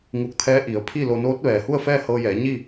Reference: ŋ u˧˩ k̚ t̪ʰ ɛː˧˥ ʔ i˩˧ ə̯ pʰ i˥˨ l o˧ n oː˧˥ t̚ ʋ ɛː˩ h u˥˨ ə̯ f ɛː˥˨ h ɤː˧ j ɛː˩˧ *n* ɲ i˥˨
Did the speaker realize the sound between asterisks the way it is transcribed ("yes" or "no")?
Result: no